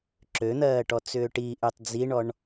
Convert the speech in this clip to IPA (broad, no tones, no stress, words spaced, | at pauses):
ǁøn̪ɜːʈɔt͡sʏː ʈiʔʉtˤ d͡ziɳɔɳ